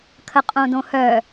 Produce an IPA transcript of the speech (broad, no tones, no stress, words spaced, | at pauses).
kʰəqʼõdõhœ